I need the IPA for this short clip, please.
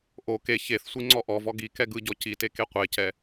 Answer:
ʔo ke çeθsʷi ŋ͡ǀɔʔɔvɔ ɡi kɛɡɯɟɔ cite keqʷecɛ

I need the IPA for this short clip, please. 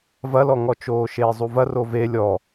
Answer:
vɐlɔŋɔt͡ʃoː ʃeːzˤuvɐ rove lʲɔ

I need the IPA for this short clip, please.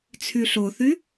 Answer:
t͡sʰyɬoθy

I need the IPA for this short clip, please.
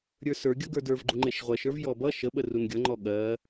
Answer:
ɾʲə˞sə˞ɡʲʌ ɡə˞də˞vɡ͡ǃu ŋ͡ǃeʃʁʷɜʃə˞v jɔbʌ ʃəɓə runɡʲʌŋ͡ǃɔ ɠɜ

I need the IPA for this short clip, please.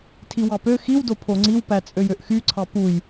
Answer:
tʰiwɑpø xiw dopʰoŋ͡ǀiw pæt͡sʼøjøʔxy ǀʰɑpuj

